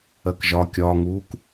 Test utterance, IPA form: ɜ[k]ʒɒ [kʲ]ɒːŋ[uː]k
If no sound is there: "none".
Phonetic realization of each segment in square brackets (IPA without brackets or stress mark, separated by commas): k, kʲ, uː